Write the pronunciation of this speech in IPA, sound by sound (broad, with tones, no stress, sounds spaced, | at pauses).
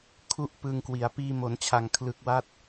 kʰ u˥˩ ʔ p ɯ˧ ŋ k w i˩˦ a̯ p iː˧ m o˩˦ n t͡ɕʰ a˨˩ ŋ kʰ l ɯ˨˩ k̚ w a˦˥ t̚